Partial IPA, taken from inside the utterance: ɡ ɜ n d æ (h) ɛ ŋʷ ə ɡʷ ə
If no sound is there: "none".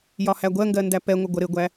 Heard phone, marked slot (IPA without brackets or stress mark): p